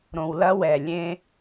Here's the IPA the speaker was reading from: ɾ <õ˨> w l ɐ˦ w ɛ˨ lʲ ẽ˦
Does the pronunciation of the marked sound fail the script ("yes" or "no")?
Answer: no